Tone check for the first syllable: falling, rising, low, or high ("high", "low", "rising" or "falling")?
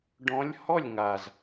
rising